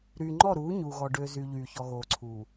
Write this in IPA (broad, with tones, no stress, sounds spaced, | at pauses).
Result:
ɾ yː˨ ŋ͡ǃ ɔ˦˨ ɾ uː˨˦ ɲ uː˨ ɣ ɔ˨ ɖ øː˨ z y˨ ʎ yː˨ ç ɔ˨ ɣ oː˨ ǀʰ uː˨